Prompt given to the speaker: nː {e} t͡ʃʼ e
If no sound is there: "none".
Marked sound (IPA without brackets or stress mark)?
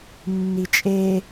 i